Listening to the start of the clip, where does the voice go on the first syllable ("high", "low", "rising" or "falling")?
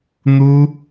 high